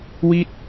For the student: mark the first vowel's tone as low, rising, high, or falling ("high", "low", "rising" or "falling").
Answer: falling